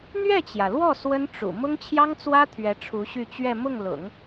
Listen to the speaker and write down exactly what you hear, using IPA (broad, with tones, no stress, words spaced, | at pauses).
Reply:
n̪ɥɛ˥˩t͡ɕjä˩lwɔ˥˩ swə˥nʈ͡ʂṵ˨˩ mʊ˥ŋt͡ɕʰjɑ˥ŋt͡swä˥ t̪ʰɥɛ˧˥ʈ͡ʂʰu˧˥ɕy˥˧ t͡ɕɥɛ˥˧ mʊ˥˩ŋlʊ̰˨˩˦ŋ